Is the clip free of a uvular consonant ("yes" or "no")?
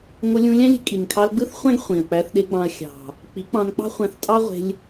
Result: no